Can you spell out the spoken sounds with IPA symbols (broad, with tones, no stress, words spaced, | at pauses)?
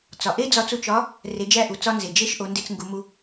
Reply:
t͡sɒ˩ ʔe˥ d͡zɒ˧t͡su˧ t͡ʃɒ˧˥ | re˩˧d͡ʒæ˧ʔu˩ t͡sɒ˧nze˩ d͡ʒe˧˥ʃʔo˩˧ nde˧t͡sŋɡu˩˧mu˧